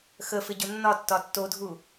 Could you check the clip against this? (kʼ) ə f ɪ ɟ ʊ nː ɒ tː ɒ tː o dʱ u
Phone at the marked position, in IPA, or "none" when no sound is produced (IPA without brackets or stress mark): x